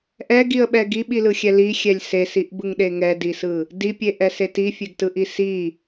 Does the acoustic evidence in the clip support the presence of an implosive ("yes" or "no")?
yes